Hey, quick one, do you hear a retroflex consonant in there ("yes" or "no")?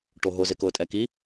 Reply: yes